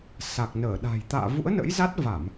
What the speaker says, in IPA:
sa˨˩k̚ nəː˧˩ɗa̤˨˩j t̪a̰ː˧˨vṵ˧˥ə̯nə̰˧˥j za˦˥t̚ va˧˩˨m

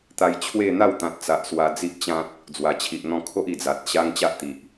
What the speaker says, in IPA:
t̪a˧jt͡ɕʰwe˥˧ n̪a˥˧wt̪ã˨t̚t͡sa˨ʔ swa˧d͡zi˦ʔt͡ɕã˦t̚ | d͡zwa˨˩t͡ɕʰi˨ʔn̪ɔ̃˧ kʰo˦ʔi˨˩d͡za˨t̚ ɕa˦ŋ t͡ɕa˦ʔt̪i˨ʔ

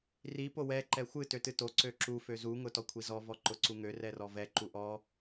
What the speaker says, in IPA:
ri powɛ ǃɛxʷɨ tøtɨto ǀøǁu føzu ŋʊtɔkʷʰizɔ vɔǃʊǀuŋø rɛrɔvɛ ǃuʔɔ

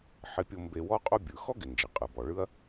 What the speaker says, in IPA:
ħɪ˧pʲo˧ mbe˧wɔ˥ qʼo˧bʲɯ˩ xɔ˥ɡɪ˩ nd͡ʒɪ˩qʼɯ˩bɔ˩ɭɯ˧ɐ̯

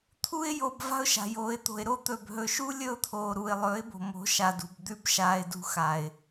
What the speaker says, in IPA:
t̪ʰu˧ɪ̯jo˨b va̤˦ʊ̯ʃa̤˨joː˨ɪ̯t̪o̤˨ɪ̯ ɾo˦t̪ɵ˨b ɦɵ˨ʃu˦ lʲɵ˦ʊ̯t̪ʰoː˨ɾu˨ɪ̯ lˠɵː˨˦ɪ̯bo̤˨ mo̤˨˦ʃa˨dṳ˨b d̪ʉ˦bʃaː˧ɪ̯dṳ˧ xa˨ɪ̯

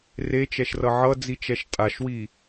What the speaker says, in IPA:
ret͡ʃɛʃrʌ ʕʌd͡zit͡ʃɛʃ tʼaʃwi

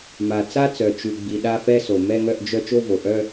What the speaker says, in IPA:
ma˩ t͡sa˥˧t͡sœ˩ t͡ʃʉ˩ɡ͡bi˩ ɗa˥˧fɛ˥˧ so˩ mɛ˥˧ŋœ˥˧ʔd͡ʒœ˥˧ t͡ʃo˥˧vo˩ʔœ˥˧

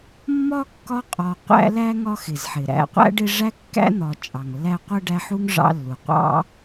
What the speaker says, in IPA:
mːɒ˥kːɒ˦qʼɒ˨ qʷæ̰˦læ˥ŋɒ˦ xɪ˩zħɪ˩ ɾæ̰˨qʷæ̰˥ɖɪ˦ ʐæ˥kːæ̰˥n̪ɒ˨ t͡ʃʼɑ˩ŋlːæ˦ qʷɜ˥ɖæ˦ħu˥ŋ ʐɑ̰˦lːu˩qʷɑ̰˥

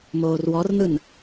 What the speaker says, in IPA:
moːrwɔrnɯn

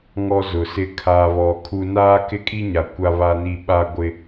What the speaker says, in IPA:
ŋɔ˦zʊ˨sɪ˦ kʰaː˨βɔ˨ kʰu˦ naː˦kɪ˦kʼi˦ɲa˨ kʷa˦βa˦ni˦ ɓa˦ɡʷɪ˦

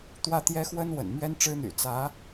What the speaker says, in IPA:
t̪wä˥˩t̪jɛ˥xwə˥n wə̰˨˩nmɥɛ˥nʈ͡ʂɻ̩˥n̪y̰˨˩ t͡sä˧˥

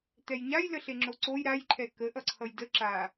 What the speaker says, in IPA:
t̪ɛjɲajləɬe ŋ͡ǁoǀoj ɾajǃʰɛ kəʔʌǀʰʌj də ǁa

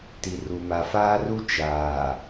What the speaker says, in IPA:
ti˨ru˨ ma˨faː˦ru˦ t͡ʃaː˨

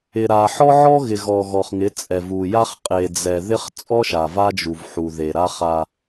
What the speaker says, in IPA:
ɪ˨ɾa˨ ħɔ˦ʕɔ˦ɣɪ˨ ɣɔ˨ ɣɔ˨χŋɪ˨˦ t͡sʼɛ˨vu˨ja˦χ qʼe˨ d͡zɛ˨ðɪ˦χ t͡sʼɔ˦ʃa˨ va˦d͡ʒu˨vħu˨ðe˨ ɾa˦χa˦

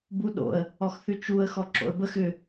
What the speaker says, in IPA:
buɗo̰ə̯ | ɔxθʉt͡ʃuə̯ xɔǁo̰ə̯bəx ʏ

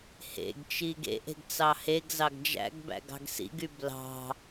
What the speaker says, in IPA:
hḛɡt͡ʃi ɡḛʔe̤ɡ t͡sɑheɡzɑɡ d͡ʒæ̰ɡbæ̰ ɡɑ̤ɡsḭɡy blɑ̤

